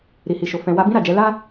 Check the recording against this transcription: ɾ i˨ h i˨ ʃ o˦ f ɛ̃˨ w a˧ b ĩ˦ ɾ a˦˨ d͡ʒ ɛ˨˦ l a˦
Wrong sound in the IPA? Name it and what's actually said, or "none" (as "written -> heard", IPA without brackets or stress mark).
o˦ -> o˨